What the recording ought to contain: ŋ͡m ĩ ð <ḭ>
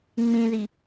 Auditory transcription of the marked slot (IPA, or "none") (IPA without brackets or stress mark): i